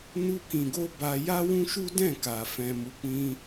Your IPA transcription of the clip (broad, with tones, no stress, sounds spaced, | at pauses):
n u˧ k ĩ˨ ɡ o˧ b a˧ j a˦ w ũ˦ ʃ u˦ d ɛ̃˦˨ k a˨ f ɛ̃˨ m u˨˦ k͡p ĩ˧